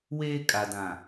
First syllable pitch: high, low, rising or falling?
high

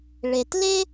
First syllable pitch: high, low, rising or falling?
low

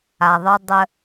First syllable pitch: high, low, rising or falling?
low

